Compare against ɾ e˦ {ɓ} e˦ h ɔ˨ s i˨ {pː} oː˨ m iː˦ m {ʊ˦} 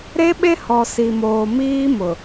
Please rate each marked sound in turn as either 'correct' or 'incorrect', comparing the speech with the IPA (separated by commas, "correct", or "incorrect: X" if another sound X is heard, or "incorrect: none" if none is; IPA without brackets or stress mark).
correct, incorrect: m, incorrect: ʊ˨